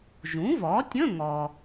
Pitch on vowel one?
rising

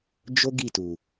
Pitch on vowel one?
high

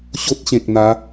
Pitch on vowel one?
high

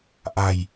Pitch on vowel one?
low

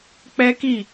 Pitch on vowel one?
high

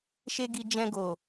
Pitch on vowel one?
high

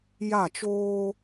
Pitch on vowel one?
falling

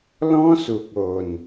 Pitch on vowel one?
high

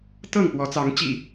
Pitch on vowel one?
falling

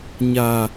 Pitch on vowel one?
low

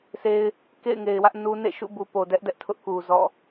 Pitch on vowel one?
high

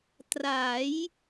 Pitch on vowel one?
rising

